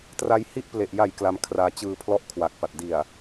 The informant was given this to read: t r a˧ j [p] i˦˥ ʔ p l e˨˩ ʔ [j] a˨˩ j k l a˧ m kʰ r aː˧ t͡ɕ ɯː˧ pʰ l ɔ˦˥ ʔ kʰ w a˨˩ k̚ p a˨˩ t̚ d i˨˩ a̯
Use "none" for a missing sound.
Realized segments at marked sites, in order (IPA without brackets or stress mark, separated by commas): h, j